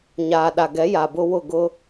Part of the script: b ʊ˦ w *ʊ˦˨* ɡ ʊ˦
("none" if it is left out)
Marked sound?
ʊ˦˨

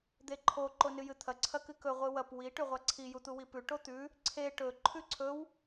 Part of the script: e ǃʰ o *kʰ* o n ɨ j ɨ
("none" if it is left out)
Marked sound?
ǃ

